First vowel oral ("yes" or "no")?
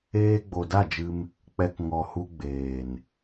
yes